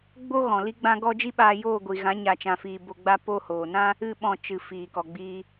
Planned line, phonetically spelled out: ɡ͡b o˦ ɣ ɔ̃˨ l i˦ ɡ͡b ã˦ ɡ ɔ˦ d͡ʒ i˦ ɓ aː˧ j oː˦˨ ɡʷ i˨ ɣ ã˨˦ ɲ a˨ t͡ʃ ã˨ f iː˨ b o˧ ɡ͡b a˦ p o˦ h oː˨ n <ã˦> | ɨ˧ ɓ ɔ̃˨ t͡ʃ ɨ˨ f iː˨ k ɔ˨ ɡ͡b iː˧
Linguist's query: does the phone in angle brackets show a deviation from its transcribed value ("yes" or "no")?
no